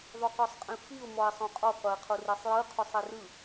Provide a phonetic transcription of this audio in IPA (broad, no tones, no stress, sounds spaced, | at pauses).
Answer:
ðˤ u q ɔ sˤ qʼ ĩ f i ʊ̯ m ɔ ɪ̯ sˤ õ qʼ ɔ qʷ ɛ ɪ̯ qʰ o r i sˤ j ɯ qʰ u sˤ i r ɯ